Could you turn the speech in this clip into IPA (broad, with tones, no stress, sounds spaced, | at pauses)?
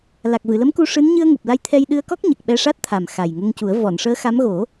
l a˨˩ k̚ v ɨ˨˩˨ l ə˧˥ m k u˧ ʂ ɨ˧˥ n ɲ ɨ˧ ə̯ ŋ u˨˩ p̚ l a˧ j t̪ʰ ɛ˧ j ɗ ɨ˧ ə̯ k ɔ˦˥ k̚ ɲ ə˨˩ k̚ ɓ ɛ˧ ʂ a˦˥ t̚ t̪ʰ a˨˩ m x a˨˩ j ŋ ə˧ ŋ c u˨˩˦ ə̯ v ɔ˨˩˨ n ʂ əː˧˥ x a˧˥ m ɣ o˨˩˦